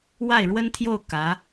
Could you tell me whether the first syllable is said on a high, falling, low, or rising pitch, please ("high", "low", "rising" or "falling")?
falling